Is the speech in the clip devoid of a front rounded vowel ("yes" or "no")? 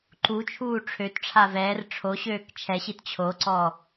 no